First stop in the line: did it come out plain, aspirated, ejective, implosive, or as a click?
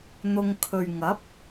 aspirated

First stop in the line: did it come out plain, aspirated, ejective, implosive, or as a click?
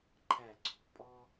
click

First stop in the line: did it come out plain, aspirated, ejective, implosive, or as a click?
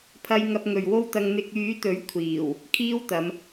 aspirated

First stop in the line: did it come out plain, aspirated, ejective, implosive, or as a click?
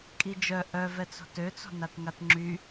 ejective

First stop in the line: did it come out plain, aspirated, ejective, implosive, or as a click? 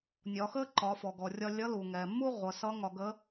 click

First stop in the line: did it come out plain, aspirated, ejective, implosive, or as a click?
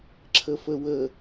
click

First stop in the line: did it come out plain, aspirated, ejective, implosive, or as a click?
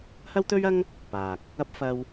plain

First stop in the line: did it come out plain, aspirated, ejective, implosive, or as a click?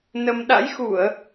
implosive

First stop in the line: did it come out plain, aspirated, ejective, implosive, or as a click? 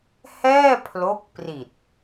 aspirated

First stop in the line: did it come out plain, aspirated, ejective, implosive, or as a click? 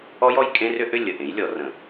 ejective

